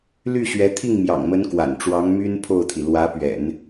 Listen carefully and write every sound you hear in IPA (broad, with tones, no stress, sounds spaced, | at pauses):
l y˥˩ ɕ ɥ ɛ˧˥ t̪ʰ i˥˩ ŋ m j ɑ̰˨˩ ŋ m ə˧˥ n k w a̰˨˩ n ʈ͡ʂ w ɑ˧˥ ŋ m y˥ n pʰ o˥˩ ʊ̯ t̪ʰ i˩ l w ä˧˥ p ɥ ɛ̰˨˩˦ n